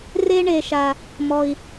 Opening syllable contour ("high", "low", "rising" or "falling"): high